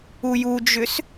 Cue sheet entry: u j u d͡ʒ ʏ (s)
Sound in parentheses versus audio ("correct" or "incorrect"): correct